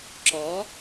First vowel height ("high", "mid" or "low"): mid